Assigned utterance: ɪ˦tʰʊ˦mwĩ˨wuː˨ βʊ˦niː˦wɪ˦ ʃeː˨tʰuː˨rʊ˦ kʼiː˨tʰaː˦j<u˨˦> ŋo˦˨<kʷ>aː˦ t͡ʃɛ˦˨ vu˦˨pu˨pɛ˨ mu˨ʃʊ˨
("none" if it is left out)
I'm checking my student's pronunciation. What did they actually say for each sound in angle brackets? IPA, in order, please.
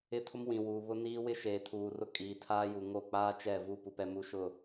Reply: u˨, k͡p

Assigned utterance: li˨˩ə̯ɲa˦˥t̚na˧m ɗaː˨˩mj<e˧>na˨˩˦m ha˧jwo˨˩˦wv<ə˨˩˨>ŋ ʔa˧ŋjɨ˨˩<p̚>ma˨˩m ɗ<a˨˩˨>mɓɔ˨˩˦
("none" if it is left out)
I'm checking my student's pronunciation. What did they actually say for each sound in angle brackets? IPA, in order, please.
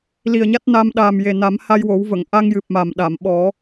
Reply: e˨˩, ə˨˩˨, p̚, a˨˩˨

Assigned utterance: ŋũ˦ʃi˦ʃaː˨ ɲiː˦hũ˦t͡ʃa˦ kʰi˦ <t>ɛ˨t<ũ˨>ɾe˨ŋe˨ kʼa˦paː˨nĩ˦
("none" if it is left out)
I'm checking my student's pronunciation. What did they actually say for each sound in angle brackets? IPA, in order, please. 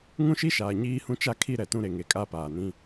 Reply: ɾ, ũ˦

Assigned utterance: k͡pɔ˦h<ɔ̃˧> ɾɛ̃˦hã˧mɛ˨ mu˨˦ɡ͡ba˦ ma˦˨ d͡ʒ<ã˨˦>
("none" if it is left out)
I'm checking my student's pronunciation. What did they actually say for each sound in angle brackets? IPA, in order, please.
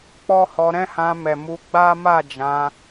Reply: ɔ˧, ã˨˦

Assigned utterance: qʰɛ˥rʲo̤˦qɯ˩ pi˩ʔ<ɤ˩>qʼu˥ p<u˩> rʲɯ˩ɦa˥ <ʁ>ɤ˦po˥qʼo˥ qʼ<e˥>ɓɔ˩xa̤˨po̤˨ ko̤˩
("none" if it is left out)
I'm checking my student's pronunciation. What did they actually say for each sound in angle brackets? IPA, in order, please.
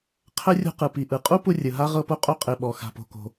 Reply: ɯ˩, u˦, ʁ, e˨

